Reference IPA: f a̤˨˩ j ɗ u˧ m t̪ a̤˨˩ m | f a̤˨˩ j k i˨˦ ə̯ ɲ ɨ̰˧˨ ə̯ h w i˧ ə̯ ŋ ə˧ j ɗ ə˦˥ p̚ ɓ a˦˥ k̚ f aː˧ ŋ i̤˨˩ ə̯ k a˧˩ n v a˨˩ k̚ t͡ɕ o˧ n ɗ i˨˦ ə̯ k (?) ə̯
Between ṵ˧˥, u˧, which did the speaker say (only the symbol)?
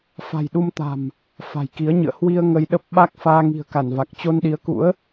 ṵ˧˥